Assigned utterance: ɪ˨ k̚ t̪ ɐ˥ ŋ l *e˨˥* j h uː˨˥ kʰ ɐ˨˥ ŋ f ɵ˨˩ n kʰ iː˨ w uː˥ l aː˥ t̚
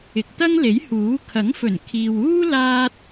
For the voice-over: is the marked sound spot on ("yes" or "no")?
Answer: yes